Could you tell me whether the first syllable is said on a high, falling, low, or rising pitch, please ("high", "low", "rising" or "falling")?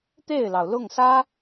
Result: falling